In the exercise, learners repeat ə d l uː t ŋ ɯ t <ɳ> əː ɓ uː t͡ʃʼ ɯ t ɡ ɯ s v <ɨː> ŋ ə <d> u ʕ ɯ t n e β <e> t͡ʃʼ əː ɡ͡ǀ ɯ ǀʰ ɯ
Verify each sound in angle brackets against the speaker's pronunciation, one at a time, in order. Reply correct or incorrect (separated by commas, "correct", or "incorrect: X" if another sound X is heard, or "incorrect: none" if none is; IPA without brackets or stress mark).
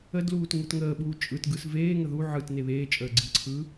incorrect: ŋ, incorrect: eː, incorrect: ð, incorrect: eː